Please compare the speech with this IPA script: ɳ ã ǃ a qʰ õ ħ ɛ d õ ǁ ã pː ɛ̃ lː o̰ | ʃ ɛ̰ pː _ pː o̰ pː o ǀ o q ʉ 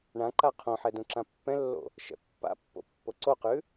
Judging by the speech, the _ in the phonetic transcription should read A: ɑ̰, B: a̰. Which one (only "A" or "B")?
B